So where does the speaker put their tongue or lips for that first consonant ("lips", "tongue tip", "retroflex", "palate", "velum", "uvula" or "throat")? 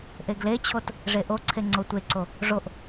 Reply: throat